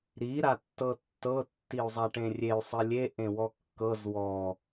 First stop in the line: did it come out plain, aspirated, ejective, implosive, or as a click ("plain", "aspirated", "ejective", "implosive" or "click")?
plain